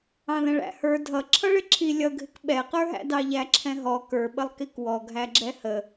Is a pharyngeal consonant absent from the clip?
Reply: yes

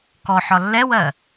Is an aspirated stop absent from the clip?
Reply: yes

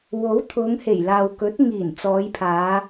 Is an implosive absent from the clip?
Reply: yes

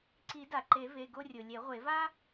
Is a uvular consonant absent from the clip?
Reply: no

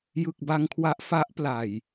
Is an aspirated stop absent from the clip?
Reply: no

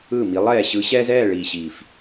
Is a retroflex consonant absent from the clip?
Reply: no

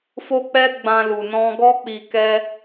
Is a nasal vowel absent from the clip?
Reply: no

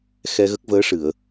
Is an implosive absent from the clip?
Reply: yes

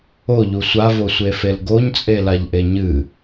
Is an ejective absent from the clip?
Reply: no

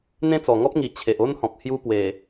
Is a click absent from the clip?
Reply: yes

